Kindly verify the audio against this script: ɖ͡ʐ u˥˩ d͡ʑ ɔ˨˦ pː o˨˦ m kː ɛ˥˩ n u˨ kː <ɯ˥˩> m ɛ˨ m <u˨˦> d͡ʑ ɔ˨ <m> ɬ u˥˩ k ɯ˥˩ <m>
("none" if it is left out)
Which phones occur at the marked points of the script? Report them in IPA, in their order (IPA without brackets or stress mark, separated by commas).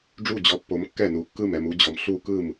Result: ɯ˥˩, u˨˦, m, m